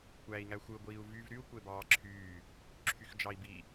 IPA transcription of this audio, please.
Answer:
kʷ æː i̯ ŋ æ xʷ ɯ ɡʷ iː u̯ v y v ɾ y u̯ kʷ e b ɑː ǁʰ yː | ǁʰ y x d͡ʒ ɑ i̯ b i

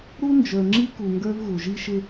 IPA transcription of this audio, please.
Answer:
ɾ u˦ n d͡ʒ ə˞˨ ŋ͡ǁ i˦ k u˨ ŋ ɡ ə˞˦ v ɣ u˨ ʒ i˦ ʃ ɪ˦

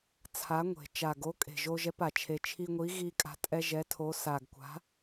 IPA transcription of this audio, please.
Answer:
t͡sʰ a˨˥ ŋʷ e̤˨˩ t͡ʃ a˨˩ ɡ o˨˥ kʼ e̤˨˩ ʒ o˧ ʒ ɛ˨˥ p a˨˩ t͡ʃʰ e˧ t͡ʃʰ i˧ ŋʷ i˨˥ ɣ i˧ kʼ a̤˨˥ tʼ ɛ˧ ʒ ɛ˨˥ tʰ o˨˥ s a˨˩ ɡ kʷ a̤˨˥

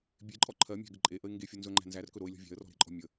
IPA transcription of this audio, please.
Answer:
bʲ e ǃʼ ɔ ǃʰ ɜ mʲ æ̤ ɡ ə ǃʼ e ʔ ə ɪ̯ ŋ ɡ e fʲ o n z ɵ ŋ͡ǃ æ̤ n z æ r k ɵ ɾ o ɪ̯ lʲ ɔ̤ vʲ æ̤ ə̯ r ɔ̤ ɾ e̤ ǃʼ ɔ̤ mʲ ə

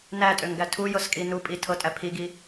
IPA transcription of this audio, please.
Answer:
n æ tʼ ø ŋ ɡ æ tʰ u j ɤ s kʼ i n u pʼ i tʰ ɤ tʼ æ pʰ i ɡ i

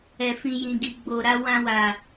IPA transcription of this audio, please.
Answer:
ɛ˨ f ĩ˨ j ĩ˨ ɡ i˨ ɡ͡b o˨ ɾ a˧ w ã˧ w a˨

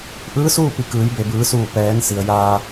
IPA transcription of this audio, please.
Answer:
ʔ ɯː˧˥ s uː˥˨ p i˧˩ k ɯː˩˧ j b e˩ b ɯː˩˧ s uː˧˩ p ɛː˩˧ n s i˩ ə̯ j aː˧

